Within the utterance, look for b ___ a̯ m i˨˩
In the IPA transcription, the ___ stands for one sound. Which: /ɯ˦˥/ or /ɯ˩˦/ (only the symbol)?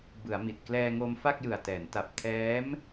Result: ɯ˩˦